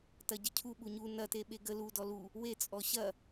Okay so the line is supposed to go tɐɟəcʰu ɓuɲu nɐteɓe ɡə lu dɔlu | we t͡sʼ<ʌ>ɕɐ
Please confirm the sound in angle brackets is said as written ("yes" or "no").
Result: no